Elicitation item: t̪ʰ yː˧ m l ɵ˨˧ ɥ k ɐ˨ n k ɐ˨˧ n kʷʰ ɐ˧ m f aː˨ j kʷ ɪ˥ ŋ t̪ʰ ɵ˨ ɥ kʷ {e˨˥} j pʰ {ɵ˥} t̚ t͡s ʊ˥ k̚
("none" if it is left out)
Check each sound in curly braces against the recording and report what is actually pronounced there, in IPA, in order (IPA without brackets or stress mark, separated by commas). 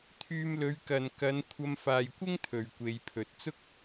e˨˧, ɵ˨˥